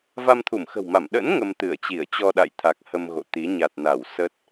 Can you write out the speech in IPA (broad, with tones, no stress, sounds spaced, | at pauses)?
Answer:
v a˧ m t̪ʰ u˧˩ m x ə̤˨˩ w m a˧˩ m ɗ ə̰˧˥ n ŋ ə˧ m t̪ ɨ˧˩ ə̯ t͡ɕ i˧˩ ə̯ t͡ɕ ɔ˧ ɗ a̰˧˨ j t̪ʰ a˨˩ k̚ h ə˧ m ɣ o̰˧˨ t̪ i˨˦ ɲ a˨˩ t̚ n a˧˩ w s ə˦˥ t̚